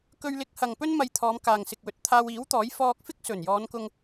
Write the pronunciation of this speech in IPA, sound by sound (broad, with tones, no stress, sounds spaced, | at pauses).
k ɵ˧ ɥ l ɪ˨˥ k̚ h ɐ˨ ŋ p ɵ˥ n m ɐ˧ j t̪ʰ ɔː˨˧ m k aː˨ ŋ s ɪ˨ k̚ w ɵ˨ t̚ t̪ʰ aː˧ w iː˨˥ w t̪ ɔː˨˥ j f ɔː˧ k̚ f ɪ˥ k̚ s ɵ˨˩ n j ɔː˨˧ n k ʊ˧ ŋ